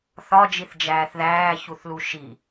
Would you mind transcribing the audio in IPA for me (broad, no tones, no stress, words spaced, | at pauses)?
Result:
θɒd͡ʒiθd͡ʒæːθ ðæːçuθlu ʃi